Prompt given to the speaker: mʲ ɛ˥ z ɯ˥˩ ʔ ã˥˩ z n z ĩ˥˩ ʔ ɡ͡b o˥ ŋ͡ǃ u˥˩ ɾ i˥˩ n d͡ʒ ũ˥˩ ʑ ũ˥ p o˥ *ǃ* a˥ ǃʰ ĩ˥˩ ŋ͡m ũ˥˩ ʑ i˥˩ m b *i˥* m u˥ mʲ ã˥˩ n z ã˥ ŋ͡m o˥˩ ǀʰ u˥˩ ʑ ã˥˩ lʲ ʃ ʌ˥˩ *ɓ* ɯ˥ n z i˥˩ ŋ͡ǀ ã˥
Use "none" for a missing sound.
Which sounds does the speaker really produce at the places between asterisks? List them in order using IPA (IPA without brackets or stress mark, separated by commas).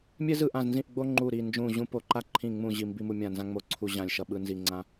ǃ, i˥, ɓ